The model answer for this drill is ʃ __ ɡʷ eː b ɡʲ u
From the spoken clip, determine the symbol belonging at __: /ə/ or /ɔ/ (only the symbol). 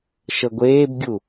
ə